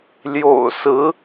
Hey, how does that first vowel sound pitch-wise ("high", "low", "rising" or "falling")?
low